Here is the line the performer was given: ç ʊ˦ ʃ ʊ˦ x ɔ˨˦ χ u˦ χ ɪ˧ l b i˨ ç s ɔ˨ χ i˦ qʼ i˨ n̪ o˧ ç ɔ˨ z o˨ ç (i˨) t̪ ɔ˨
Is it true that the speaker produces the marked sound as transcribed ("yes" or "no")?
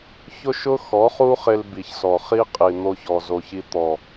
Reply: no